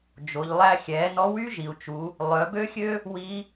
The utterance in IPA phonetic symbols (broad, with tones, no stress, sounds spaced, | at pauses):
d͡ʒ o˩˧ ʎ lˠ æ˧ xʲ ɛː˩˧ n ɔ˧˥ w y˥ ʒ i˩ u̯ t͡ʃ u˩˧ | lˠ œ˩˧ b ø˥ xʲ ø˥ | w i˧˥